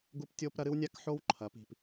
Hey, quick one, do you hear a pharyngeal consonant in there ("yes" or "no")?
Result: yes